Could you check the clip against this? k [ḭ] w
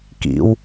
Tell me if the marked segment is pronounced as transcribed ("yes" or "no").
yes